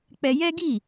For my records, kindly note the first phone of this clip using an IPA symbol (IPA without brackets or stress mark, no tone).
k͡p